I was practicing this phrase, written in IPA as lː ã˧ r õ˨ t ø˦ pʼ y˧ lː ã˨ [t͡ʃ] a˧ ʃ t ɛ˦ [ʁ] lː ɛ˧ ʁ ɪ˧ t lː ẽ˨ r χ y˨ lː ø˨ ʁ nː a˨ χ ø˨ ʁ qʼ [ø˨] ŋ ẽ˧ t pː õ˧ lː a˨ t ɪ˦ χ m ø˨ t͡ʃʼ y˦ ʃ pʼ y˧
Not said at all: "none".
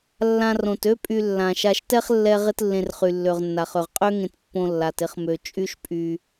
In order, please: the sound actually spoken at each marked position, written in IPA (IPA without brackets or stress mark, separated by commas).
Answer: ʃ, χ, ø˦